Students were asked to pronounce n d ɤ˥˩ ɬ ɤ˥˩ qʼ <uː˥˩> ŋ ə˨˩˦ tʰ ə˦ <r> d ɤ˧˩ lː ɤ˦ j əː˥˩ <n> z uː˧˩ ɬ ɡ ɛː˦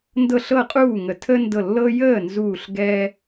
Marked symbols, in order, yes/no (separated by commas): yes, no, yes